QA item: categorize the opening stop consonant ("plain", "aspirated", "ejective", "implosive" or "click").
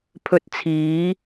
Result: aspirated